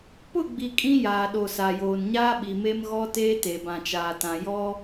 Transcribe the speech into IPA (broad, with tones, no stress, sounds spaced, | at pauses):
p ʊ˦˨ ɡ͡b i˨ kʼ ĩ˦ j aː˨ ɗ o˨ s a˨ j oː˨ n ɲ aː˦ ɓ i˨ m e˦ m ɣ ɔ˦ t eː˦ t e˨ b ã˨ t͡ʃ aː˨ t ã˨ j ɔ˦